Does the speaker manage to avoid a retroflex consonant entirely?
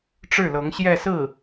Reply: no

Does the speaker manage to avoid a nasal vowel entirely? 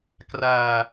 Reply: yes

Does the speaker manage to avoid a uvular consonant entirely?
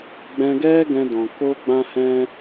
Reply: yes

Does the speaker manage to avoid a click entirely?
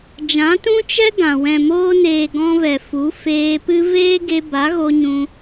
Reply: yes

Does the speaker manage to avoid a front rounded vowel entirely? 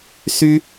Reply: no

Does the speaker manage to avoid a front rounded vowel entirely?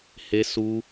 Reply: yes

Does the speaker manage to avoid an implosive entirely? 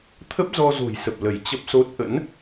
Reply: yes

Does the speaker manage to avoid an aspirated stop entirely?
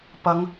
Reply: yes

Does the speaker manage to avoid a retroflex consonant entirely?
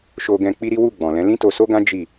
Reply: yes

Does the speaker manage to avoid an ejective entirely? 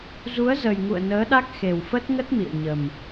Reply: yes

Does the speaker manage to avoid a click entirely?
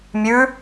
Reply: yes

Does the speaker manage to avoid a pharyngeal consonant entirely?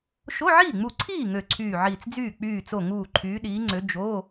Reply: no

